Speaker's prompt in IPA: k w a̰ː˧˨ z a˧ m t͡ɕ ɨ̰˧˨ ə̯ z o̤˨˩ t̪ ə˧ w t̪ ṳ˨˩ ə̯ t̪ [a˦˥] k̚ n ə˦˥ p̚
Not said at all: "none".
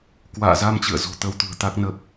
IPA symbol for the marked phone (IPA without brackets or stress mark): a˦˥